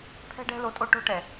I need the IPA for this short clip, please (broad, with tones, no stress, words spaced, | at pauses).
pʰɛ̤˦ɖɛ̤˦lo˧ tʼo˦ʈo̤˦ʈɛ˨